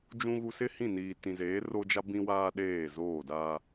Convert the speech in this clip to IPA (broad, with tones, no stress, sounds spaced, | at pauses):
d͡ʒ ũ˨ ɣ u˨ s ɪ˦ h ĩ˦˨ n iː˨ t ĩ˨ z eː˨˦ r o˦ d͡ʒ a˦ b ĩ˦ w aː˦ ɗ eː˦˨ z oː˦˨ d a˦